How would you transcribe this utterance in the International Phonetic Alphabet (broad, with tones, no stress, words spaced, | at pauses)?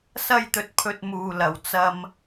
sɐ˧jt̪ɵ˨t̚pʰɵ˨t̚ muː˨lɐ˨w t͡sɐ˧m